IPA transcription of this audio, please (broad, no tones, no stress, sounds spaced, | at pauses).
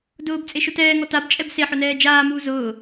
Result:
d ʊː b t͡sʼ e ʃ ʊ t ɛː ŋ ɔ t a b t͡ʃʼ ɛ b s e ħ ʊ n ɛː d͡ʒ aː m uː z ʊː